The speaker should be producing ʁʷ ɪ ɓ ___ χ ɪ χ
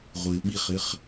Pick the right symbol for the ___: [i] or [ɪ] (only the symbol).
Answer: i